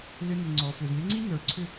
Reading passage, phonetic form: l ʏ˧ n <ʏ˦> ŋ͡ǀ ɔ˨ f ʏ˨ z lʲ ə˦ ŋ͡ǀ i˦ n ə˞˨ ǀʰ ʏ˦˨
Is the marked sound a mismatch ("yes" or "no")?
yes